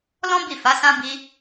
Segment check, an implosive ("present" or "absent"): absent